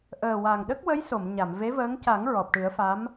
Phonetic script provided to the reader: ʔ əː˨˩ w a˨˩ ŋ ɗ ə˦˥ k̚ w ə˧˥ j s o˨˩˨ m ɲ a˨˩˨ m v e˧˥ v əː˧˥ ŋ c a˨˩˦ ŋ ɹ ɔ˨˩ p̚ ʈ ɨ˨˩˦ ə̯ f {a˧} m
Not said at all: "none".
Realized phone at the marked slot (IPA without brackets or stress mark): a˧˥